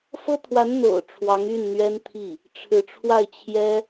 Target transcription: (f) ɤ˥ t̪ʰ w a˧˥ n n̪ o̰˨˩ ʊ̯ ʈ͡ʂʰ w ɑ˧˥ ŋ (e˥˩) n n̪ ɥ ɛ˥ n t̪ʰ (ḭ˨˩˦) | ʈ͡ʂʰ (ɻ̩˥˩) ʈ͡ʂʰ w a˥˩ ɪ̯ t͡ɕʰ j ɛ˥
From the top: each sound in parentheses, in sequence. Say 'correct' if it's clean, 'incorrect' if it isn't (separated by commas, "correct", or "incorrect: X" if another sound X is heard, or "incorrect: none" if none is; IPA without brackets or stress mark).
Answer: correct, incorrect: y˥˩, incorrect: i˥˩, incorrect: ɻ̩˧˥